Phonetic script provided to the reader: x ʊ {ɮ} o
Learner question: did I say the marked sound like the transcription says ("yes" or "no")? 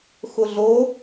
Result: yes